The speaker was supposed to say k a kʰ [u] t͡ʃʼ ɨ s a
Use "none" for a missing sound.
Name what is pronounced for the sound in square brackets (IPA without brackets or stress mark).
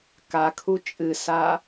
u